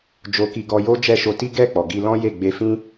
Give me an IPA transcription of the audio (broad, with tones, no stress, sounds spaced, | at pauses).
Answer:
d͡ʒ o˧ k i˧ ɡ ɔ˧ j o˦ d͡ʒ ɛ˦˨ ʃ o˧ t i˦ ɡ ɛ˦˨ k͡p ɔ˨ ɡ i˧ l ɔ̃˦ j e˦˨ ɡ͡b e˧ f ĩ˦